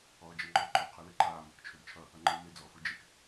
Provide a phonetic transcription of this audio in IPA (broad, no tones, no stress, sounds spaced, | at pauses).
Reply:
ɔː d͡ʒ ʌ ŋ͡ǃ ɔ ǃ ɔ qʰ ɨ l ɨ ǃ aː m ɵ k t͡ʃʰ ɵ d t͡ʃʰ ʌ | ʌ ŋ͡ǃ ɨː m e d͡z ɔː f u d͡ʒ e k